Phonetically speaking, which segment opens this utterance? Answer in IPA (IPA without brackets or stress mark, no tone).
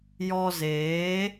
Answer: j